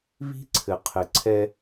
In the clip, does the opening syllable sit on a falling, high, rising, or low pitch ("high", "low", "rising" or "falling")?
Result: high